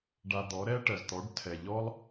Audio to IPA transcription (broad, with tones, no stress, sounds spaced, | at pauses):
ɖ a˧ d̪ ɔ˩˥ ɾ ɛ˥ ʈ ɜ˩ z t̪ ɔ˩˥ ɖ tʰ ɛ˩ ʎ ɔ˥ lˠ